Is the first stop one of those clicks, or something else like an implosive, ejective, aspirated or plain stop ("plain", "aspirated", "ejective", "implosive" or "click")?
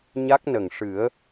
plain